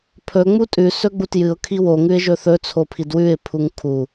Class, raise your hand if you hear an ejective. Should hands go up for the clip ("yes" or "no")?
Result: yes